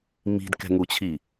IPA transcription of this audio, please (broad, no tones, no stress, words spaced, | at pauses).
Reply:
mi̤dkɛ̤ŋut͡ɕʰi